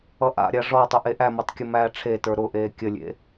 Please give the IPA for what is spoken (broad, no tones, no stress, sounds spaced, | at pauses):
ʌ ʔ a̰ ɾʲ a ʐ ɔ tˤ ʊ ʔ e ʔ æ m ʊ tˤ kʲ ə m æː ʈ͡ʂʰ e t ə˞ ɾ ʊ ʔ eː kʲ ə lʲ ḛ